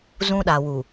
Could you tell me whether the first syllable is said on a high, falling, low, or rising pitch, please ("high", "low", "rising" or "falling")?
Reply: high